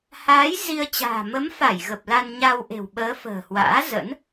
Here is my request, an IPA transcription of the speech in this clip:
haː˨˦j zi˧ə̯t͡ɕa̤ː˨˩ mə˨˦mfa˧˩j ɣə˨˩p̚la˧nɲa˧wʔe̤˨˩w ɓəː˨˦ fə̤ː˨˩hwa̰ː˧˥ zə̰˧˥n

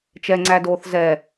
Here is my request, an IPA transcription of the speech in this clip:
t͡ʃɛŋ͡ǀædoːθ zɛ

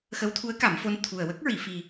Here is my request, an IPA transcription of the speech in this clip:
xə˧˥wt̪ʰu˧˥ə̯ ka˨˩˦mfo˧n t̪ʰu˨˩ə̯wə˦˥k̚ ɹi˨˩˨ fi˨˩

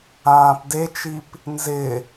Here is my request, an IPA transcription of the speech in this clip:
ãːpdet͡ʃip | nzɪ

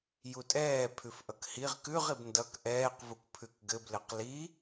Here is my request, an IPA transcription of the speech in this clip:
jutʼɛːpʰʉfʔʌk hiʁ kʉʁib ndʌk ʔɛːqvukpʰʉk ɡɘblɘq li

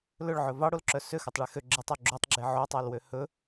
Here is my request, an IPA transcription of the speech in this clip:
lɵɭʕɵ vɑɽolǁœ søxœtˤɭe xø ɡ͡ǁetˤo ɡ͡ǁotˤɡ͡ǁe ʕotˤɑlwø hɵ

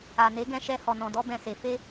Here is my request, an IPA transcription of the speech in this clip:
a˨ne˨˦ɡɛ̃˧ʃɛ˧ hɔ˨nɔ̃˨dɔ˧ bɛ̃˨se˨ fe˧

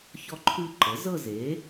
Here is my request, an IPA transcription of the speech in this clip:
çɔ˥˧ǃʰʉ˥˧ ǃɤ˩˥ zɤ˥˧ze˩˥

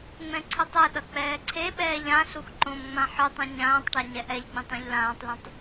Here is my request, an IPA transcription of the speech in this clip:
ŋ͡mɛ̃ǀʰutˤɛɗʌ k͡pɛːǀʰeɓɛːʎ ãɬux ǃõmŋ͡mã ħɯtˤõ ɲãːtˤʈa ɲɛʔɛʎɡ͡bĩtˤ ɛ̃ʎlãːtˤlɛ̃tˤ

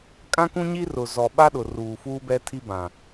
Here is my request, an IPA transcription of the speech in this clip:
kʼã˦kũ˦ɲi˦ rʊ˨ zɔ˨ɓa˦ɗʊ˨ ruː˨fuː˦bɛ˦tʰi˦ bã˨

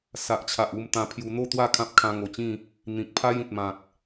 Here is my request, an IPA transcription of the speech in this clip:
sa˨ʔt͡ɕʰa˨ʔu˥˧m t̪ã˧pʰju˧ n̪o˥˧t̪wa˥˧ kʰã˦p̚ kʰã˧ŋo˨˩t͡ɕĩ˥˧ | n̪ĩ˨k̚pʰa˦jĩ˨t̚ mã˨k̚

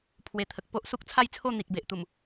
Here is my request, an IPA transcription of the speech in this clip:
pʰwe˨˩ t̪ʰə˨k̚ po˦ʔ su˦k̚t͡sʰa˥˧jt͡sʰo˥˧ n̪i˨k̚be˨ʔt̪u˨˩m

